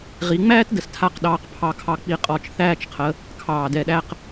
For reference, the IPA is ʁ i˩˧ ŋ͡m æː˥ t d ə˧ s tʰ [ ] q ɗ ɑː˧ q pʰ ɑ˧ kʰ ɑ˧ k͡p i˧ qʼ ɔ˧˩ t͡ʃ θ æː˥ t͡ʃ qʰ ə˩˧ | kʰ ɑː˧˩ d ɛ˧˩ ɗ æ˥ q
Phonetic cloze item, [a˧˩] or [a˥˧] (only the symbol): a˥˧